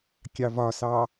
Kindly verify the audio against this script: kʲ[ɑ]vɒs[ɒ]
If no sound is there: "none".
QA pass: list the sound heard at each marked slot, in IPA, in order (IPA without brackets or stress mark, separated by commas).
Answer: ɑ, ɑ